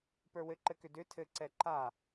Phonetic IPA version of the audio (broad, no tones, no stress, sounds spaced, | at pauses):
p ə˞ w ɘ ǃ ɘ k ʏ d ʏ tʰ ɘ ǀ ɛ ǃ a